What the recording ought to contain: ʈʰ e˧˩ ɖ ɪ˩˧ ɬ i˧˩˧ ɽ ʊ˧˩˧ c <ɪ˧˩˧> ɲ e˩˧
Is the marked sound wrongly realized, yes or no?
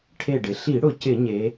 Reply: no